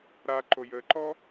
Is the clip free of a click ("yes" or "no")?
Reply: no